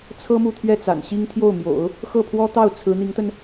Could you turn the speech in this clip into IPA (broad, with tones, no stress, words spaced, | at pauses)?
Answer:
t͡sʰɤ˥ mu˥˧t̪ʰɥɛ˥˩ t͡sa̰˨˩nɕi˥ŋ t̪ʰjo˥˩ʊ̯mjo̰˨˩˦ʊ̯ | xɤ˥˩pʰwɔ˥t̪ɑ˥˩ʊ̯ t͡sʰɹ̩˧˥n̪i˧˥ŋt̪ə˧n